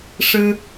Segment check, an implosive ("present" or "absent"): absent